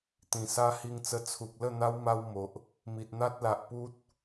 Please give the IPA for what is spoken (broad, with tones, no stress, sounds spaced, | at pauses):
t̪ ĩ˨˩ s a˧ h i˧ ŋ t͡s ə˧ t͡sʰ u˨ k̚ l ə˥˧ n̪ a˦ w m a˦ w m o˨ ʔ | m i˨ t̚ n̪ a˦ t̚ l a˨ ʔ p u˦ t̚